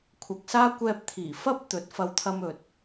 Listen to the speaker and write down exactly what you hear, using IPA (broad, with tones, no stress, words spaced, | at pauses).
kʷʰɐ˨k̚saː˥ kʷɛː˧p̚t̪ʰiː˨˩ fɐ˥p̚ t̪ɵ˨˥t̚fɐ˧wt̪ʰɐ˧mɵ˨t̚